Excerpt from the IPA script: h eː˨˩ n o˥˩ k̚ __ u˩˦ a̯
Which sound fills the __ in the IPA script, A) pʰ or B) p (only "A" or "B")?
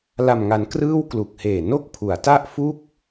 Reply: A